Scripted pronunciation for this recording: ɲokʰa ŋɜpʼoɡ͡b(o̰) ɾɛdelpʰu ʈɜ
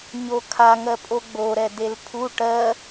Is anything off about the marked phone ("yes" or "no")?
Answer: yes